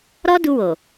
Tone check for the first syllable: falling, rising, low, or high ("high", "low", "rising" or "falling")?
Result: high